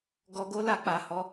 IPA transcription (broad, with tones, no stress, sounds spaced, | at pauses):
ɡ ɔ˧ ɡ o˦ l a˧ k͡p a˨ h ɔ˨˦